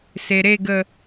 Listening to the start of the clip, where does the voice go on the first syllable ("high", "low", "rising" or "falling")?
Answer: low